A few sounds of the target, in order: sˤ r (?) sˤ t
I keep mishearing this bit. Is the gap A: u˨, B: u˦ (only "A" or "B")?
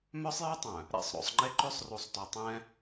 A